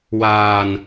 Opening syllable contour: low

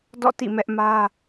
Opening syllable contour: falling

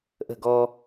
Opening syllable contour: falling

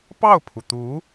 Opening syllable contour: falling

